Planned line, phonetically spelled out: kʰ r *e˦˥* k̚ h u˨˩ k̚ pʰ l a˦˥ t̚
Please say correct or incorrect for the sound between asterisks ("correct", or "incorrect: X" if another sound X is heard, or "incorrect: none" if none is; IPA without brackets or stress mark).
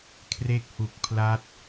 correct